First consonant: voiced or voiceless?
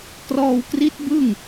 voiceless